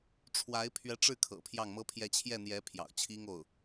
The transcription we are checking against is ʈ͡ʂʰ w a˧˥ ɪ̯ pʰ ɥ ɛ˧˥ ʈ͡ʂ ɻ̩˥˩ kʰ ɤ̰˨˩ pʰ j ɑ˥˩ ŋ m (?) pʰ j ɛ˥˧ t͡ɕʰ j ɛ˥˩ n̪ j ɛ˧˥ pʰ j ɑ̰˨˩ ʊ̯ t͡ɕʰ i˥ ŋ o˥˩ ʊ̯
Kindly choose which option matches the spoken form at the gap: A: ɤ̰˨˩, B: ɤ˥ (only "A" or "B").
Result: B